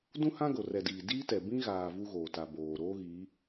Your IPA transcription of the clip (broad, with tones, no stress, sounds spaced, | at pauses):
d ũ˦ h ã˦ ɡ o˨ r ɛ˨ d iː˨ d iː˦ t ɛ˨ b ĩ˦ ɣ aː˨ v u˦ ɣ oː˨ t a˨ b oː˨ ɾ oː˦ ɣ iː˨˦